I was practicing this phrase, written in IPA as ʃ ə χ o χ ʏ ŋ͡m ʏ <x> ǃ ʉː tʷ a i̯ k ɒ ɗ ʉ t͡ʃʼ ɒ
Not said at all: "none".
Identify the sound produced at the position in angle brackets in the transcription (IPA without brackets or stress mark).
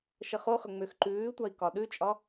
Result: x